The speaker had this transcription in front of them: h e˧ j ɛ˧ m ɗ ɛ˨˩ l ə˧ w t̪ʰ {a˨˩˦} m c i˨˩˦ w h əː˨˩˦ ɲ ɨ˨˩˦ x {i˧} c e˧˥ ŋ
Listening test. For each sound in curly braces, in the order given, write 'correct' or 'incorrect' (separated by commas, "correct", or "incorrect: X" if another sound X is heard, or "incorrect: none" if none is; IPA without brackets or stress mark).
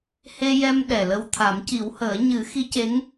correct, incorrect: i˧˥